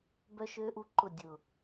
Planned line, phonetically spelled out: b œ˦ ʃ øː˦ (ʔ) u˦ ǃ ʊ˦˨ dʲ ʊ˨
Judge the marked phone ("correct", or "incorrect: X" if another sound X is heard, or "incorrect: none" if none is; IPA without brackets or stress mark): correct